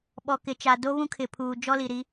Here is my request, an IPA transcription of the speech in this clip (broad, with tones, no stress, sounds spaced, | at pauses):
ɓ ɔ˨ k ɪ˨ t͡ʃ a˨ d o˦ β ũ˦ kʰ ɪ˨ pʰ uː˨ d͡ʒ ɔ˦ l i˨ ɾ i˨˦